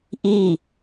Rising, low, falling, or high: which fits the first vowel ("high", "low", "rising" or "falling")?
falling